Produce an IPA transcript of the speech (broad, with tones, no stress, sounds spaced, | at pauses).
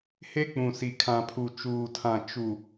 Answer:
h e˦ k͡p ũ˨ s i˨ kʰ ã˨ pʰ u˨ t͡ʃ uː˨ tʰ ã˨ t͡ʃ u˨